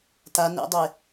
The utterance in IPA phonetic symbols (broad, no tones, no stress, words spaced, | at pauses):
ta nɛ̰dˤe